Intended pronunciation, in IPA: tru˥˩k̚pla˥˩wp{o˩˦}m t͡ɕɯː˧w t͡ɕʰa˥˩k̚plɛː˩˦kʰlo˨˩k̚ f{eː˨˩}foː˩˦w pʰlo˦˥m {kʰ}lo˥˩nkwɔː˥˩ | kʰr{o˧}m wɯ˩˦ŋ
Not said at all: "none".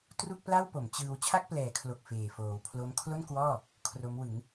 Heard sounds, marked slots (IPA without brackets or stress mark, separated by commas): o˩˦, eː˨˩, kʰ, o˦˥